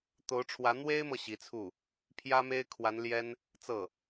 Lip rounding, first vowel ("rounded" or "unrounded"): rounded